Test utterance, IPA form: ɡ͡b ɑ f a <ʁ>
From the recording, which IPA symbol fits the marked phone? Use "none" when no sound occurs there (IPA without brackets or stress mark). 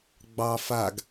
ɡ